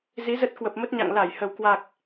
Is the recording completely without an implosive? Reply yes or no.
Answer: yes